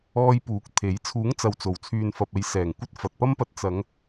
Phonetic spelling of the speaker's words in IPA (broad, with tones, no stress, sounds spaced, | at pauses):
ɔː˧ j p uː˨˥ k̚ t̪ʰ e˨˥ j t͡sʰ uː˨˥ ŋ t͡s ɐ˨ w t͡s o˨˩ w t͡sʰ yː˨ n f ɐ˨ p̚ e˨˧ j s ɛː˨˩ ŋ kʷ ɐ˧ t̚ f ɐ˨ t̚ p ɐ˥ m p ɐ˧ t̚ t͡s ɐ˨˧ ŋ